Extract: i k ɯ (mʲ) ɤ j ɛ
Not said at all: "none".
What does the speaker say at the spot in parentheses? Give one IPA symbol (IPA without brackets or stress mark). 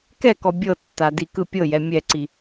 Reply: pʲ